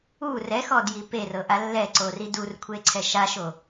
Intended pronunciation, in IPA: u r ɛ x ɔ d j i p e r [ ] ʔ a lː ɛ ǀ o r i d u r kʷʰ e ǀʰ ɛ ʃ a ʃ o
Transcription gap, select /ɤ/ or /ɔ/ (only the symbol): ɤ